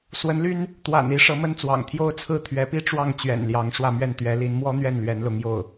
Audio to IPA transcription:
s w ə˧˥ n l y˥ n | t̪ w a̰˨˩ n i˧˥ ʂ ɤ˧˥ m ə˥ n t͡s w ɑ̰˨˩ ŋ t̪ʰ j o˥ ʊ̯ t͡sʰ ɹ̩˥ t̪ʰ ɥ ɛ˧˥ p i˥ ʈ͡ʂ w ɑ˥˩ ŋ t͡ɕ ɥ ɛ̰˨˩ n l j ɑ˧˥ ŋ ʂ w ä˥˧ m ɥ ɛ˥˩ n t̪ ɥ ɛ˧˥ l i˧˥ n m w ɔ˥ n̪ ɥ ɛ˥˩ n l ɥ ɛ˧˥ n l ʊ˧˥ ŋ j o˥˩ ʊ̯

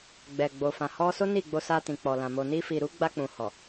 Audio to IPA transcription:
ɡ͡b ɛ˨ ɡ͡b o˨ f ã˨ h ɔ˧ s o˦ n i˦˨ ɡ͡b o˧ s a˧ t ĩ˨ k͡p ɔ˨ l ã˨ m o˨ n i˧ f i˨ ɾ u˨˦ ɡ͡b a˧ k͡p ũ˨ h ɔ˨

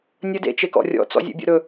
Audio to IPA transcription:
nʲ ə d ḛ t͡ʃ e k ɔ̰ rʲ ɔ̰ t͡s ɔ̰ zʲ ḛ bʲ ɔ̰ ɾ ɵ

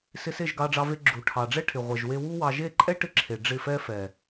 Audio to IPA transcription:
s ɪ˧ s e˦˨ ʒ ɡ ɑ˧ ɖ͡ʐ ɑ˧ v e˧ ɡ͡ǁ u˨ ʈʰ ɑ˨ ɖ͡ʐ ɛ˦ ʈʰ ɪ˨ ʁʷ ɛ˨ ʒ w e˧ w u˦ w ɑ˧ ʒ e˦˨ ǃʼ ɛ˦ ʈ ɪ˧ ǁʰ e˨ ɖ͡ʐ ɪ˦˨ f ɛ˦ f ɛ˨

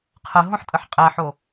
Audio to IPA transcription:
qʰ ə ɦ õ ħ tʼ ə ħ qʼ æ ħ o

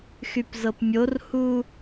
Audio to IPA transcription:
x y p z ɤ p mʲ o r h u

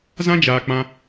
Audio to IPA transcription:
z ã˦ d͡ʒ aː˨ k͡p ã˧

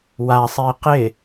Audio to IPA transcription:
w a sˤ i q ɪ

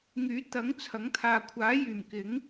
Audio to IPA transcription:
ŋ yː˨˥ t̪ ɐ˨˥ ŋ t͡sʰ ɐ˨˥ ŋ t̪ʰ aː˨ kʷʰ aː˨˥ j yː˨˩ m k ɪ˨˥ ŋ

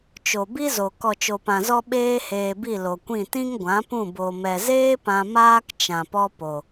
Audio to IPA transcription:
t͡ʃ o˨ b i˦ z o˨ k ɔ˨ t͡ʃ o˨ p ã˨ z ɔ˧ ɓ eː˦ h eː˧ b i˦˨ l o˨ kʷ ĩ˦˨ t ĩ˦ ŋ ɡʷ ã˨˦ p ũ˦˨ b o˨ m ɛ˨ z eː˦ p ã˧ m aː˦ k t͡ʃ ã˨ p ɔ˦ p o˨

